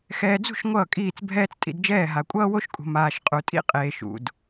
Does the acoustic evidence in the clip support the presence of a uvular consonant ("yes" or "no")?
yes